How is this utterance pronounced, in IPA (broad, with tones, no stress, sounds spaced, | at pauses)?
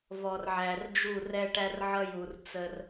v ɔ˨ r ʕ æ˨ r d͡ʒ u˦˨ r ɛ˦ ʈ æ˦ r ʕ ʌ˦ j u˨ r t͡s ə˦ r